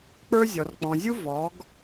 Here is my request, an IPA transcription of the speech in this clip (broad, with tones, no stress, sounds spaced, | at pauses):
k͡p ə˞˦ zʲ ɔ˨ r k͡p ɔ̃˨ zʲ u˦ v ɔ˨˦ ɡ